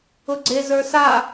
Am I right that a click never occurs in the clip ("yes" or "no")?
no